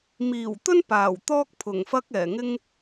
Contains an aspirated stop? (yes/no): yes